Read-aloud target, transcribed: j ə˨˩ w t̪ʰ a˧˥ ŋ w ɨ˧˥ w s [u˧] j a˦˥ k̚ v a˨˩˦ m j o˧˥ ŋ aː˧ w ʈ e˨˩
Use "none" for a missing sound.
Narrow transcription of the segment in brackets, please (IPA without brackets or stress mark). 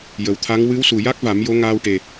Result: u˨˩